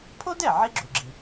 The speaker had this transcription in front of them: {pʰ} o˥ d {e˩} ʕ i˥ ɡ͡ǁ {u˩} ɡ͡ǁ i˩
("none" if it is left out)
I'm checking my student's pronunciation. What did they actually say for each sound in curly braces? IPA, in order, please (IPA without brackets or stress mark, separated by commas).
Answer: pʰ, ɛ˩, u˩